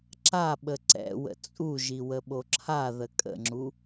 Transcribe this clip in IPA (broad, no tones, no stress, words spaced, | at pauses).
ǁaɓə ǀɛ̰wə̰ t͡sʼuʒi wəɓoǁʰaðə kʼə̰ŋ͡ǁu